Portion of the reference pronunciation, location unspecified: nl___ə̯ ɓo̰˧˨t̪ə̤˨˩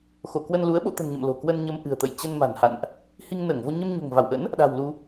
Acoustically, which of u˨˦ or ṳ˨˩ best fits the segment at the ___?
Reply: u˨˦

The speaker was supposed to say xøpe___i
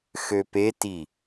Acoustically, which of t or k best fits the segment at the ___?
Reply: t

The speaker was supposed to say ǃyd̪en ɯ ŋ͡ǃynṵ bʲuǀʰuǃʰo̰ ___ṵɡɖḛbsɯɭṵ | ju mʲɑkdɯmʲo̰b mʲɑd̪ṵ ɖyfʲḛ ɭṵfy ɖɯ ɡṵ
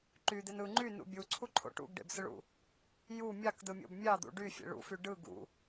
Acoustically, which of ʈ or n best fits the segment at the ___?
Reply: ʈ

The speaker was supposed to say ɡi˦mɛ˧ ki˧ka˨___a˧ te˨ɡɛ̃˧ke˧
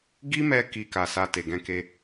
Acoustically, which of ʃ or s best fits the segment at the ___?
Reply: s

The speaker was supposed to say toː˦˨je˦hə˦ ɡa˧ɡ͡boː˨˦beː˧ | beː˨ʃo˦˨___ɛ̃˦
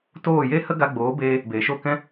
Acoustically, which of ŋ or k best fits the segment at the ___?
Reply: k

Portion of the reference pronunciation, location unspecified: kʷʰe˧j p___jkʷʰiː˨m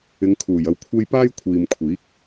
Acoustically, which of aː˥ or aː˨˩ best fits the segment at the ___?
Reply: aː˥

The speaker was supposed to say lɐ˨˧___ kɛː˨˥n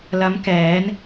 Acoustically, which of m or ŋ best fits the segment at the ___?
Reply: m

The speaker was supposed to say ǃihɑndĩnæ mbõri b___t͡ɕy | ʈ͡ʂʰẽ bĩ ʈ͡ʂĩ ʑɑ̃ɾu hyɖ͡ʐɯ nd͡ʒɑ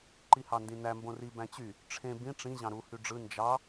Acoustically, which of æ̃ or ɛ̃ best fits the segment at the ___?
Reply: æ̃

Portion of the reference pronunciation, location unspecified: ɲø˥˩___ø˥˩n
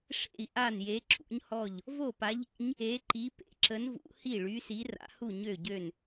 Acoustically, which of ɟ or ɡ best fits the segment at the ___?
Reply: ɟ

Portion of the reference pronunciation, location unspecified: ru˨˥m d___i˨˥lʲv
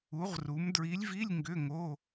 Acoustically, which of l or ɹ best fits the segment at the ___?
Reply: ɹ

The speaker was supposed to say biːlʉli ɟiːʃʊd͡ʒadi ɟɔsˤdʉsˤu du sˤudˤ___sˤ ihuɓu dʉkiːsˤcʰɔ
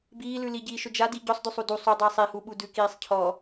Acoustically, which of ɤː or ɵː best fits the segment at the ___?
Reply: ɤː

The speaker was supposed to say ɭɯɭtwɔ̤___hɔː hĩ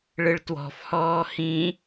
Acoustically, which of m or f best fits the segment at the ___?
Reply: f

